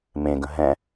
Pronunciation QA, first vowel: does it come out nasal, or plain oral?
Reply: nasal